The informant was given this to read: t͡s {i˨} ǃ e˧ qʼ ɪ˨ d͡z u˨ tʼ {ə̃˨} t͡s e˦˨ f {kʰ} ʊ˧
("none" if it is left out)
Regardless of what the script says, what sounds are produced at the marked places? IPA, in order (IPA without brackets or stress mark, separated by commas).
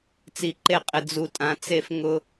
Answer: i˨, ã˨, ŋ